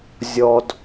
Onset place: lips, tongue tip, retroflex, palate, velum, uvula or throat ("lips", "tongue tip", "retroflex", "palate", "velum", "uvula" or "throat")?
tongue tip